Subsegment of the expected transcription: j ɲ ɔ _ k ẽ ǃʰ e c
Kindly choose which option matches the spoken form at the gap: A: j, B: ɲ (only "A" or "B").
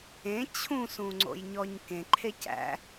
B